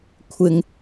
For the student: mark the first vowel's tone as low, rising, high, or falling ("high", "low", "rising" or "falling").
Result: high